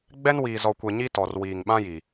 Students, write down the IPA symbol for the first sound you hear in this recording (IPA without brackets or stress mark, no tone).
ɡ͡b